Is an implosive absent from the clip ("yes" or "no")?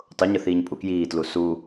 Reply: yes